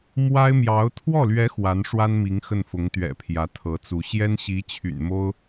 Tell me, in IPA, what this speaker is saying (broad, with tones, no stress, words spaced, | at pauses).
mwa˥ɪ̯mjɑ˧˥ʊ̯ t̪ʰwɔ˥˩lɥɛ˧˥ xwa˧˥nʂwa˥n mi˧˥ŋxə˥˩nfʊ˧˥ŋt̪ɥɛ̰˨˩ pʰjä˧˥t̪ʰɤ˧˥t͡su˧˥ ɕjɛ˥nɕi˧˥t͡ɕʰy̰˨˩nmo˥ʊ̯